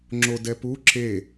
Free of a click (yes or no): no